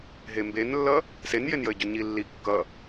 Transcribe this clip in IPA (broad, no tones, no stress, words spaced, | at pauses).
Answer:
ɦembenlːʌ | senjenjəɪ̯ɟɵ ɲilːi kːʌ